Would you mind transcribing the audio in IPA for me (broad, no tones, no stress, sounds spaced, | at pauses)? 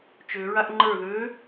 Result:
t͡ʃ ø ɹ a ʔ ŋ͡ǃ ə˞ ð ø